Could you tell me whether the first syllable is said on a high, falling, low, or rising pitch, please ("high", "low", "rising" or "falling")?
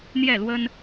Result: falling